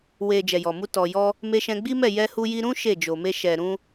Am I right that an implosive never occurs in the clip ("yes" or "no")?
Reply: yes